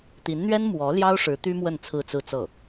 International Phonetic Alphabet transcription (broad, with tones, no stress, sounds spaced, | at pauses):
t̪ i˧˥ n n̪ ɥ ɛ˥ n m w ɔ˧˥ l j ɑ˥ ʊ̯ ʂ ɻ̩˧˥ t̪ y˥ m w ə˥˧ n t͡sʰ ɹ̩˥˧ t͡s ɹ̩˥˧ t͡s ɤ˥˩